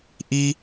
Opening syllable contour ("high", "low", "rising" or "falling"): high